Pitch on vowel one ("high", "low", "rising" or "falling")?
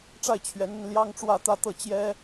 falling